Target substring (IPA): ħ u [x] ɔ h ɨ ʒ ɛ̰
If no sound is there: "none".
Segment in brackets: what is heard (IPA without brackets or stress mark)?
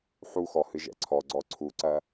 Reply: x